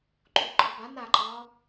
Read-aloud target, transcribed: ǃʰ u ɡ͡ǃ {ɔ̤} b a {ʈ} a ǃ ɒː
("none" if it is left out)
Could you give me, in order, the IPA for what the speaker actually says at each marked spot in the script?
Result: ɔ, n

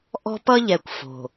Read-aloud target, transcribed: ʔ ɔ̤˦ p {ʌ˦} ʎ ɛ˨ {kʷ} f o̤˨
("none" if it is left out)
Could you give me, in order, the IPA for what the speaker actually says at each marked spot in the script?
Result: ʌ˦, kʷ

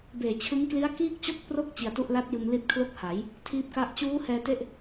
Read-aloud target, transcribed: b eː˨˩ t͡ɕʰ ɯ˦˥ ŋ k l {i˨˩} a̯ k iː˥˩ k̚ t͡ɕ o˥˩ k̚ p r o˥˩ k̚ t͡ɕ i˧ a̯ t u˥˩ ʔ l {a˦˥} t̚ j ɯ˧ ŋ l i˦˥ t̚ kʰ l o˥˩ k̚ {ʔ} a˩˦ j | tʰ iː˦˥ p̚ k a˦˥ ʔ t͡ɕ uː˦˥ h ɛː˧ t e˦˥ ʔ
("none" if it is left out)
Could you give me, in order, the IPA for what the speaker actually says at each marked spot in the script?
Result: i˦˥, a˦˥, h

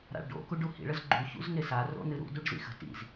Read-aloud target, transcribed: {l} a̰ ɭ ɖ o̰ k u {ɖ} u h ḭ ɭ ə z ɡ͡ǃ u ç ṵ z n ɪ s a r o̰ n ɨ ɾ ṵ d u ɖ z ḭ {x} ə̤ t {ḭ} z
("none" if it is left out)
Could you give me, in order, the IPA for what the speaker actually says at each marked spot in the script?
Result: ɾ, ɖ, x, ḭ

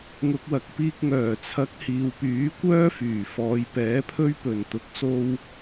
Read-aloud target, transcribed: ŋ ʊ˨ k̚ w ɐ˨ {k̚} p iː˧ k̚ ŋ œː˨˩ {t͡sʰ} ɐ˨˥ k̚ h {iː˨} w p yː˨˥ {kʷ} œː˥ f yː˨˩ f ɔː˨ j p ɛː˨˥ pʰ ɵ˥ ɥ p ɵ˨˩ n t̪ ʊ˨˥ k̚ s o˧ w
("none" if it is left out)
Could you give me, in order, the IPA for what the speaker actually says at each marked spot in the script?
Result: k̚, t͡sʰ, iː˨, kʷ

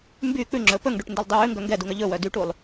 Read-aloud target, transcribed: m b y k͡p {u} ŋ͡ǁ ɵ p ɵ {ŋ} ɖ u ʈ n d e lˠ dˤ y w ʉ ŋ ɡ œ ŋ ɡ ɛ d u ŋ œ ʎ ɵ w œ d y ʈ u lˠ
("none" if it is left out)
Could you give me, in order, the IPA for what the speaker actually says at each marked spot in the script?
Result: ʉ, ŋ

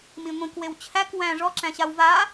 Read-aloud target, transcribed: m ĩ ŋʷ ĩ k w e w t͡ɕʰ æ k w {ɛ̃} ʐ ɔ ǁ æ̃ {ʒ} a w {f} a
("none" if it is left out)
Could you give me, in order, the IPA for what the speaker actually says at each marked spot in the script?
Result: æ̃, ɕ, v

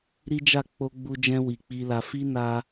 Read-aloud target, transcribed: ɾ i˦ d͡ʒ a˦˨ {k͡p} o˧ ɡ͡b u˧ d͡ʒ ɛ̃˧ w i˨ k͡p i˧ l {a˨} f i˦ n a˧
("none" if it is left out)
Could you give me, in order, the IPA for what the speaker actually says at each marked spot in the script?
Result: k͡p, a˧

